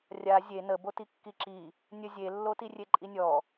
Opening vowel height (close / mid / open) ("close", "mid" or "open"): open